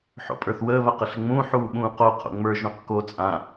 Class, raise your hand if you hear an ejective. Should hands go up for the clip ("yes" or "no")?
yes